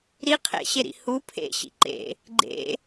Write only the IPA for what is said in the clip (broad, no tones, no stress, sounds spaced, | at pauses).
ɾ i qʰ ḛ ɕ e ɾ ḭ h u pʰ ḛ ɕ ḭ ǃ ḛ | ɡ͡ǃ ḛ